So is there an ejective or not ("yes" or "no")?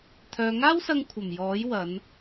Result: no